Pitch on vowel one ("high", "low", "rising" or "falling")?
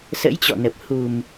rising